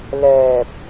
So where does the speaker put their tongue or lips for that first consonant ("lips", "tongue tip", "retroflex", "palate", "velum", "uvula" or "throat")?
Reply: tongue tip